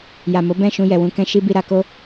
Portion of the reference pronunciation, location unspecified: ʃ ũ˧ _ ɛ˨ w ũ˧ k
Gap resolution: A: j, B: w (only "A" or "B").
A